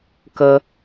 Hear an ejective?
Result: no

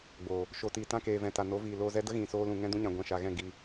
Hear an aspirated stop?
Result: no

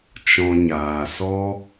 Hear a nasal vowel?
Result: yes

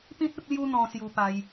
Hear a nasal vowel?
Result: yes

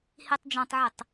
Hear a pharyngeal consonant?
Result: yes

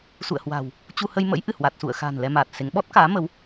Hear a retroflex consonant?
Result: no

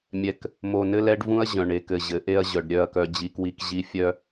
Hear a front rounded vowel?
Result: yes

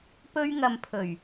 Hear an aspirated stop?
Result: yes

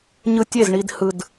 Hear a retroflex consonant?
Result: yes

